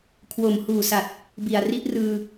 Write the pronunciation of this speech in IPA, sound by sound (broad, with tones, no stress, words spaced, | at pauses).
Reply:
kʰwo˨˩mhuː˨˩sa˨˩t̚ | bi˨˩a̯ri˦˥ʔrɯː˧